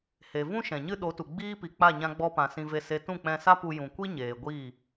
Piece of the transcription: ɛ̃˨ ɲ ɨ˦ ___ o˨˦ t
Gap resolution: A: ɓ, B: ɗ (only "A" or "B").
B